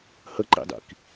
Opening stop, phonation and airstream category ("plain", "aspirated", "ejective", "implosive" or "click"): click